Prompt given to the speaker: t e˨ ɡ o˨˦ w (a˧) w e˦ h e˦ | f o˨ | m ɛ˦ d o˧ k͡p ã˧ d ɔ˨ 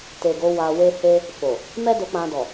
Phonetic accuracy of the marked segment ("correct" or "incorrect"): correct